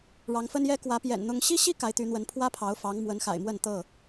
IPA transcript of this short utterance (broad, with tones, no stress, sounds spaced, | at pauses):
ɻ ɑ˨˦ ŋ f ə˦ n j ɛ˦ k w ä˨˦ p j ɛ̰˨˩ n n̪ ʊ˦ ŋ ɕ i˦ ɕ i˦ k a˨˦ ɪ̯ t̪ y˨˦ n̪ w ə˨˦ n pʰ w ä˦ pʰ ɑ˨˦ ʊ̯ f ɑ˨˦ ŋ m w ə˨˦ n x a̰˨˩ ɪ̯ m w ə˥˨ n t̪ ɤ˥˨